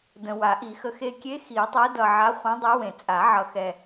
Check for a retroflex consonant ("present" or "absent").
absent